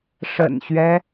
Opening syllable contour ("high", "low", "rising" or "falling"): low